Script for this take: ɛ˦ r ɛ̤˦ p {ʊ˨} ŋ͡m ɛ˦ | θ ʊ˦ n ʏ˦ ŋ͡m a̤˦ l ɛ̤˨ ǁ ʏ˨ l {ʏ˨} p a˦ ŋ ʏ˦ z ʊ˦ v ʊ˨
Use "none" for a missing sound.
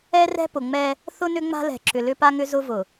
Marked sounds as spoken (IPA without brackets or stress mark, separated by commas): ʊ˨, ʏ˦